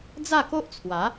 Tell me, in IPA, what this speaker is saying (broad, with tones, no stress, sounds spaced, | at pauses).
d͡z a˥˧ k o˦ ʔ t͡sʰ w a˨˦